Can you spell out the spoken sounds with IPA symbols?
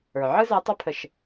ə˞˩ ʕ ɯ˦ z a˨˦ tˤ ə˞˦ pʰ ə˧˩˧ ʃ

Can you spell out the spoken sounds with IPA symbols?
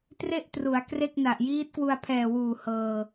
t r e˥˩ ʔ t r u˩˦ a̯ k r e˥˩ k̚ n a˨˩ ʔ j iː˦˥ t̚ k w u˧ a̯ pʰ ɛː˨˩ w uː˨˩ h ɤː˧

